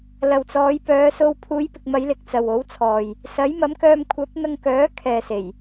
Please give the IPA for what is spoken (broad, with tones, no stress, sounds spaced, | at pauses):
l ɐ˨ w t͡s ɔː˨˧ j p œː˨˧ s o˧ w pʰ uː˨˧ j p ɪ˨ k̚ m ɐ˨˧ j l ɪ˨ k̚ t͡s ɐ˨ w o˨˥ w t͡sʰ ɔː˨ j | s ɐ˨˥ j m ɐ˨˥ m k œː˧ m kʷʰ ɐ˨˥ p̚ n̪ ɐ˧ ŋ k œː˨˥ kʰ ɛː˨ s e˨˩ j